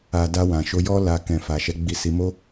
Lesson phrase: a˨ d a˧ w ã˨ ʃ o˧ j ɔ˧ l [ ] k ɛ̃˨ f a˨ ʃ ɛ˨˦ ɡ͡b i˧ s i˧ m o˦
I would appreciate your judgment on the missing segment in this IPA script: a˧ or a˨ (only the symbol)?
a˨